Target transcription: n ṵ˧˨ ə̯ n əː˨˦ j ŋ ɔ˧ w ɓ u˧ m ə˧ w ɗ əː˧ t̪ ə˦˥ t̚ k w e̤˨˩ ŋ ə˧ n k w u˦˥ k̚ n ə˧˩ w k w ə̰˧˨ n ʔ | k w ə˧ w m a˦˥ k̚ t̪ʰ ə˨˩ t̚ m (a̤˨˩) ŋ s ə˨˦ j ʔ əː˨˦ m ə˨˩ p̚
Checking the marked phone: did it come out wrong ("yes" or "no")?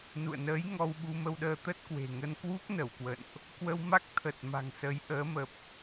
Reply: no